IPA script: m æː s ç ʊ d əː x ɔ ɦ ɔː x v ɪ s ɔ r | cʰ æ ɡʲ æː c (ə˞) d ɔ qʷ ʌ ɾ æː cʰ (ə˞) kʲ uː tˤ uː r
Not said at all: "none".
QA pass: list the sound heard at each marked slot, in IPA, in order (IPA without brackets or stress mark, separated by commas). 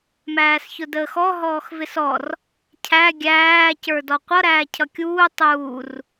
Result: ə˞, ʌ